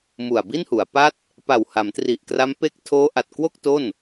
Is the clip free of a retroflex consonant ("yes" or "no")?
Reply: yes